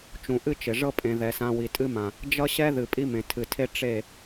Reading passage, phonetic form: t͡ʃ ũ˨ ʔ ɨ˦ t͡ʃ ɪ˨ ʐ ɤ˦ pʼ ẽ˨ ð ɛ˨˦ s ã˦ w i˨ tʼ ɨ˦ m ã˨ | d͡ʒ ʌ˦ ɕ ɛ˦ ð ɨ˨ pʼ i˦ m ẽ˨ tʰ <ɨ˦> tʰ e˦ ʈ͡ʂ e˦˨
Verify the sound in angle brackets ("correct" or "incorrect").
incorrect